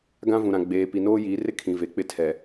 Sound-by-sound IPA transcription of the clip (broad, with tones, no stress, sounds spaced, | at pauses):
ɡ ã˦ v ũ˨ ɾ ã˨ ɡ͡b eː˨ p i˨ n oː˦ j iː˨˦ r ɪ˦ kʰ ĩ˨ v e˨ k͡p ɪ˦ tʰ ɛ˨